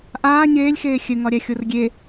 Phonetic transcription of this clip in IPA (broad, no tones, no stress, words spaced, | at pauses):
ʔaː ɲeːlʲxeː xʲɘŋɒɾʲæxʲor ɡʲe